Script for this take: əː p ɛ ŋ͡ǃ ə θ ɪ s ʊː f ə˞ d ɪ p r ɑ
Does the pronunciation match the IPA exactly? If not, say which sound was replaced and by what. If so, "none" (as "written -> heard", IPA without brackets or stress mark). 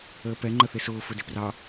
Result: none